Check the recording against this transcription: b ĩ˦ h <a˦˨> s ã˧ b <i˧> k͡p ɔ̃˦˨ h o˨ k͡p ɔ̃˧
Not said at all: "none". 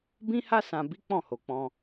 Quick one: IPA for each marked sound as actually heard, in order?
a˦, i˦

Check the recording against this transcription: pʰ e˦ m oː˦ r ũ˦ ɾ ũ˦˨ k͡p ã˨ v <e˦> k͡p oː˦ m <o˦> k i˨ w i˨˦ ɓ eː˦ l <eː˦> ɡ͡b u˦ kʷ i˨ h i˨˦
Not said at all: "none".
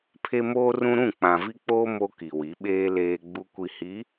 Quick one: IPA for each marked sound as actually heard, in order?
i˦, o˦, eː˦

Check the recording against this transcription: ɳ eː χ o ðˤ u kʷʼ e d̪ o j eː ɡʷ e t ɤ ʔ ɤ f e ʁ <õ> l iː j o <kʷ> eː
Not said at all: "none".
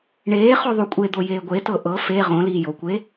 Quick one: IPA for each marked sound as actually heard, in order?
õ, kʷ

